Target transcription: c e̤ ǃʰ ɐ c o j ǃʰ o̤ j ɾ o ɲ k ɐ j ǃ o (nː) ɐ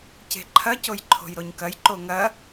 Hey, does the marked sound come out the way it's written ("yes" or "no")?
no